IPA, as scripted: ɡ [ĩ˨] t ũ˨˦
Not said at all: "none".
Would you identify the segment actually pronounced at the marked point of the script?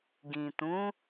ĩ˨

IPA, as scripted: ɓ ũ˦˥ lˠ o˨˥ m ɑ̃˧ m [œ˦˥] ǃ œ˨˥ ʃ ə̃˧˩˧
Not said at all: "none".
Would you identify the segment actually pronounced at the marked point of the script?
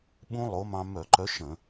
œ˧˩˧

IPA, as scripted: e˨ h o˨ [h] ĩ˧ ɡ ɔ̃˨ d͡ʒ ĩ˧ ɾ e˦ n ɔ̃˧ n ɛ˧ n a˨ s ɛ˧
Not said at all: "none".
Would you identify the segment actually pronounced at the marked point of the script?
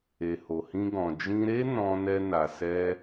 h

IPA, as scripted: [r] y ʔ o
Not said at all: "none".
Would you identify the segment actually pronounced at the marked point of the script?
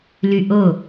l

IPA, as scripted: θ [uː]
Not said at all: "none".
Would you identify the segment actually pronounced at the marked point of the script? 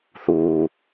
uː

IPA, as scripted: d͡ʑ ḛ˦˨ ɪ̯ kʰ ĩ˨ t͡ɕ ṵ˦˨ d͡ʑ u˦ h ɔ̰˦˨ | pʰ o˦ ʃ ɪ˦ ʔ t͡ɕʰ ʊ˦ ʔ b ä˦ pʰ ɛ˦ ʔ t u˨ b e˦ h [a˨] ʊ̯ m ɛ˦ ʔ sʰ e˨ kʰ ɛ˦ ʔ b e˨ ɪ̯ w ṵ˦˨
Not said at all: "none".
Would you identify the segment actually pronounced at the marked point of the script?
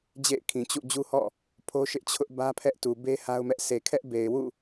a˦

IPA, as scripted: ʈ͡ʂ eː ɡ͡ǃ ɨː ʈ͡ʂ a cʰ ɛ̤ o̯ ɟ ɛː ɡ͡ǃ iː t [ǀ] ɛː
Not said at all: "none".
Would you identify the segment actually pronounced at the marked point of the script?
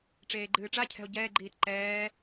ǃ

